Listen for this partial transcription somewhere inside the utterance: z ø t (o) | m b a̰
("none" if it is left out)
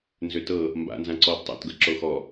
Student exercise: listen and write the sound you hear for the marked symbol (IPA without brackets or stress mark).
ɤ